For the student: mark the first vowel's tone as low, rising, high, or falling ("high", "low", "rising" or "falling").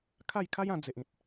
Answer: falling